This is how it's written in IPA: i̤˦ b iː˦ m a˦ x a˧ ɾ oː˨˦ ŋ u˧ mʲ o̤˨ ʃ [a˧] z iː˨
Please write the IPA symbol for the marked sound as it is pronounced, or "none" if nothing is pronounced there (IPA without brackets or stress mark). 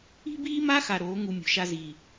a˧